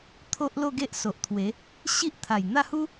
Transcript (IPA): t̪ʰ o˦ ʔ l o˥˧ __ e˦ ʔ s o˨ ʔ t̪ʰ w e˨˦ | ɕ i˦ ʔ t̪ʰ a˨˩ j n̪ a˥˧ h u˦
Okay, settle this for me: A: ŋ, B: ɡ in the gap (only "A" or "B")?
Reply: B